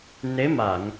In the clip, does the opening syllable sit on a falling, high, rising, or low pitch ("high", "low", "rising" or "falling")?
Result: rising